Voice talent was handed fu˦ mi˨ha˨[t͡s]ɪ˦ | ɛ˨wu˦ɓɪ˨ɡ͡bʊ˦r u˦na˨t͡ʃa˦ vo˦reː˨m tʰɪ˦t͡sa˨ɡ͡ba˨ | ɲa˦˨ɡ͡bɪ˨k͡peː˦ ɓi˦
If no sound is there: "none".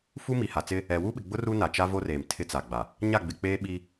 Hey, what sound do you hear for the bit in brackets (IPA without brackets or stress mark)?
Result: t͡s